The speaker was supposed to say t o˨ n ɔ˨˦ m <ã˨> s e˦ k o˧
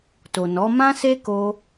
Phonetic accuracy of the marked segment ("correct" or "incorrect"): incorrect